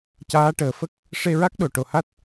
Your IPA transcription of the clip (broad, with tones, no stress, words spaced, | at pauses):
caː˧˥ʈəː˨˩fə˦˥k̚ | ʂe˧ɹa˦˥k̚ɗo˨˩ ʈo˨˩ha˦˥t̚